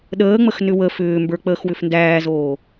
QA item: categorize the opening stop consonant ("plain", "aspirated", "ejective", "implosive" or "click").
implosive